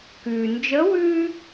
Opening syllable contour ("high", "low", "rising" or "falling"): low